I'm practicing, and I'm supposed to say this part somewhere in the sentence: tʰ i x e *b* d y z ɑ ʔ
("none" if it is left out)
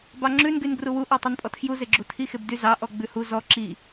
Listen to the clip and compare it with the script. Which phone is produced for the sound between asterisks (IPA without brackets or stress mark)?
b